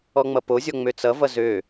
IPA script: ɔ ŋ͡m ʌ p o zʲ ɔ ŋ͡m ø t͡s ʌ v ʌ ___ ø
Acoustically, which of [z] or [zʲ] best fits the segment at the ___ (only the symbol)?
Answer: z